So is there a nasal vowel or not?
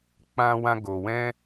yes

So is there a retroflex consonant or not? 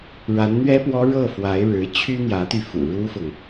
yes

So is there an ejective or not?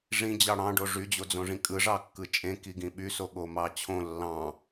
yes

